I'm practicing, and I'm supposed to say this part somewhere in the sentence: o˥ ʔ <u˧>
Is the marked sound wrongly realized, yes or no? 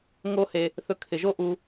no